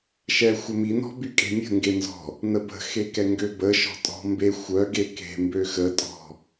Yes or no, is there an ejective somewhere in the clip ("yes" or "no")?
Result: yes